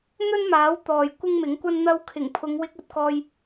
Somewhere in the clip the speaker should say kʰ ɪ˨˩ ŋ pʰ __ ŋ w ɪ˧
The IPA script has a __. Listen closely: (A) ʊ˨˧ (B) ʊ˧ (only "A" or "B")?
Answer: A